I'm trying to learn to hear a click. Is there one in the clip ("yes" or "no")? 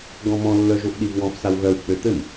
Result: no